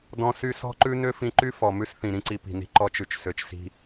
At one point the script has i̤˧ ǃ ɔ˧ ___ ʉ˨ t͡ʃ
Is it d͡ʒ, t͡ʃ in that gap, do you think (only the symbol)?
t͡ʃ